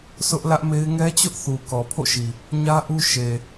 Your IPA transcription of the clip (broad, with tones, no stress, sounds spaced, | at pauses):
sʰ ʊ˦ ʔ l ä˦ ʔ m e˦ ɪ̯ ŋ ɛ˦ t͡ɕ ʊ˦ ʔ θ u˨ k ɔ˨ pʰ o̰˦˨ ʃ i˨ | ɲ ä˦ ʔ u˦ ʃ e˨